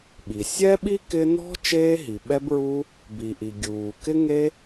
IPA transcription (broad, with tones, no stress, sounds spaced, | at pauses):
ɓ i˩ sʲ ɛ˥ ɓ i˥ k ɪ˥ n ɔ̤˥ t͡ʃ eː˥ ɦ i˩ ɓ ɛ˥ b ɹ u˥ | b i˩ ʔ i˩ ɡʲ uː˩ k ɪ˥ ŋ e˥